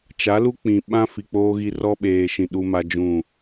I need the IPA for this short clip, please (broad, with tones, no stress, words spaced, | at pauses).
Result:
t͡ʃa˨˦lu˦ k͡pĩ˨ ɓã˦ fi˨k͡poː˦ɣi˦ rɔ˦ɓeː˨ʃĩ˨ ɗu˦ma˦d͡ʒũ˦˨